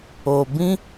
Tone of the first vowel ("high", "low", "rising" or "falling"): low